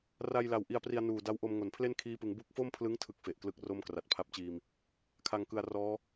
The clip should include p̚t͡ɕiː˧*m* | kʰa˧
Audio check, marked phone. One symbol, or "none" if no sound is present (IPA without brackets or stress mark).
m